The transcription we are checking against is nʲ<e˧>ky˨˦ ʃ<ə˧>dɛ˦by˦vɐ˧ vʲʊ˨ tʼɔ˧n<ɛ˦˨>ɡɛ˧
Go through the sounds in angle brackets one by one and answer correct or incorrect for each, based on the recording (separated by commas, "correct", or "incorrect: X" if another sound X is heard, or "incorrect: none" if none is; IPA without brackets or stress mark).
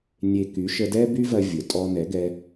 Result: correct, correct, incorrect: ɛ˨˦